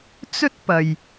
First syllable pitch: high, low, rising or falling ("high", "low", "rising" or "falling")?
high